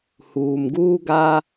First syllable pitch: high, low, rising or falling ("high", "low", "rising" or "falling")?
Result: low